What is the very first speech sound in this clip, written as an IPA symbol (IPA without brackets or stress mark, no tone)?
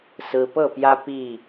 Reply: s